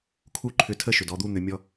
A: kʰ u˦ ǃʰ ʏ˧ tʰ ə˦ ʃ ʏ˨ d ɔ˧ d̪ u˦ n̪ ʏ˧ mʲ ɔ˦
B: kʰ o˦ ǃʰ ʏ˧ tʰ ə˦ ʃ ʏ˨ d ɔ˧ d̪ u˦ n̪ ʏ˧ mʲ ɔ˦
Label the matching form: A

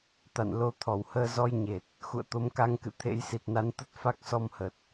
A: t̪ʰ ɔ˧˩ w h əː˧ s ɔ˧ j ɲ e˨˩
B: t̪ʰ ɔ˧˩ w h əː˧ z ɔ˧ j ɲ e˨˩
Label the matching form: B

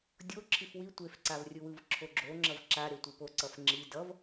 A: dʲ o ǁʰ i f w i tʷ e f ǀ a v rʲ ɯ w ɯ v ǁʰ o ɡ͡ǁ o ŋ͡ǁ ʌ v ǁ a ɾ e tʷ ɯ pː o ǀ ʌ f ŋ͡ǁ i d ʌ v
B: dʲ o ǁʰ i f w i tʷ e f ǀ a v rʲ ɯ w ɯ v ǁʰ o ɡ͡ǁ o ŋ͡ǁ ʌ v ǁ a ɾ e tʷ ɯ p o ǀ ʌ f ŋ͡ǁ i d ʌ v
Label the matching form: B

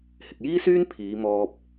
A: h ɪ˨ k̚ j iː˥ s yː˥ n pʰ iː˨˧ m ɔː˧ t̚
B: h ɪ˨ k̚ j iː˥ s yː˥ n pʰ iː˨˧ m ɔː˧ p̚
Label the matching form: B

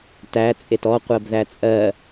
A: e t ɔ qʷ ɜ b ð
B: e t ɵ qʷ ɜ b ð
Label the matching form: A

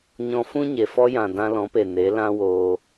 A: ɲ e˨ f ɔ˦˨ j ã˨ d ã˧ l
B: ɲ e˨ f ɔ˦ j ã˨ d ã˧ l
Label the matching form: B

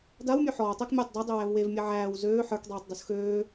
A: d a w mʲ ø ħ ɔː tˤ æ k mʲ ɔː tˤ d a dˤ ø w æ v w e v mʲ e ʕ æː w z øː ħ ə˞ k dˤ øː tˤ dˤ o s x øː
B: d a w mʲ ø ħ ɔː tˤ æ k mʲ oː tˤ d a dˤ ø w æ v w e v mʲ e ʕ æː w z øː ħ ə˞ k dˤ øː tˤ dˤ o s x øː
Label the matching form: B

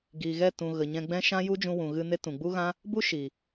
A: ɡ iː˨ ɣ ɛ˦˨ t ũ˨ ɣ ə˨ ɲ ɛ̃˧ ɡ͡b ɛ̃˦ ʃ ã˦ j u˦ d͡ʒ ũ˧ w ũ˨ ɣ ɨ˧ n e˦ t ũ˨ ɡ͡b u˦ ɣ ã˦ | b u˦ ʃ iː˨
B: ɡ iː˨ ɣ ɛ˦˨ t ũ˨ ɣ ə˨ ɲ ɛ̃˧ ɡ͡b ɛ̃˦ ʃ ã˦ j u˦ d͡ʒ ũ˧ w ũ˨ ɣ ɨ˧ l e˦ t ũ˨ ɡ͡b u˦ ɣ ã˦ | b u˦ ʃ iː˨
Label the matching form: A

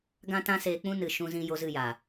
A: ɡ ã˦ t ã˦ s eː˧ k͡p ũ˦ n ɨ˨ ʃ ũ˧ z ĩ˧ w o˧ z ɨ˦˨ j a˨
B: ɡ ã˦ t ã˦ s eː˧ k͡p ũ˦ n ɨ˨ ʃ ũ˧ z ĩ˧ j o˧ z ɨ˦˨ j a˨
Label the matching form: B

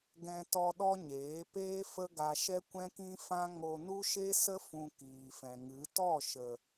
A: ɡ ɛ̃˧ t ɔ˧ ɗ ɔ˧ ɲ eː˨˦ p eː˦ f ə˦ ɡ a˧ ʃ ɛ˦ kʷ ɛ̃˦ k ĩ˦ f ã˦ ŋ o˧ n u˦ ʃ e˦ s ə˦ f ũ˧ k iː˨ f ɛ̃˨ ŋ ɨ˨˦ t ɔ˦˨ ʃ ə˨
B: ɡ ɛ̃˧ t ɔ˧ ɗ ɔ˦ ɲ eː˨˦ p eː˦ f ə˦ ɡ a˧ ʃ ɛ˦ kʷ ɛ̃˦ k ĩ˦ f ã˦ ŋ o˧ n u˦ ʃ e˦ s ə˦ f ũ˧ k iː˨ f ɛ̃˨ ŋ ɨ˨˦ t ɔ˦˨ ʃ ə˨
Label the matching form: B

